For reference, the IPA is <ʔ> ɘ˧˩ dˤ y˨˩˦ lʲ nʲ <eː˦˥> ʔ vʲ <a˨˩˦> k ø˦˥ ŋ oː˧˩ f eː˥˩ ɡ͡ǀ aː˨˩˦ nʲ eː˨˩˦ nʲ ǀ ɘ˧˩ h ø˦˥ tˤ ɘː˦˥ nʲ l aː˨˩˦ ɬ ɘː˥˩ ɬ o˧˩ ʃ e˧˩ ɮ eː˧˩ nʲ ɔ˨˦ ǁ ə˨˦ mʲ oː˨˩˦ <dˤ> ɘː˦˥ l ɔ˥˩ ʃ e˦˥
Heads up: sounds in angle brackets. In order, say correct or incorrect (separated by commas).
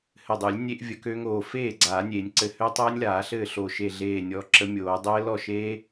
incorrect, incorrect, incorrect, correct